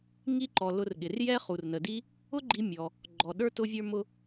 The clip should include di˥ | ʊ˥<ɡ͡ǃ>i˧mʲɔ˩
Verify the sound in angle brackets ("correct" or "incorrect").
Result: correct